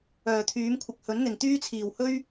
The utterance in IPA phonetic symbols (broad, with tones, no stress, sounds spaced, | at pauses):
œː˨˩ t̪ʰ yː˨˥ m kʷʰ ɪ˨ k̚ h ɵ˨˥ n n̪ ɪ˨˩ ŋ t̪ yː˥ t͡sʰ iː˨˩ w h ɵ˥ ɥ